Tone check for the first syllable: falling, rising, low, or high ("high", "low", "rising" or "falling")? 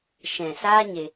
low